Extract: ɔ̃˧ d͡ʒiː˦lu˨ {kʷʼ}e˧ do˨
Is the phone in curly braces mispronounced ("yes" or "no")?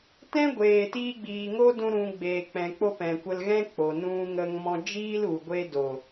yes